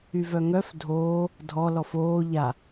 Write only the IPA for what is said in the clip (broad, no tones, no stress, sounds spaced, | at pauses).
y v œ ŋ œ f dʱ oː | dʱ ɔ l ɔ f oː ʎ a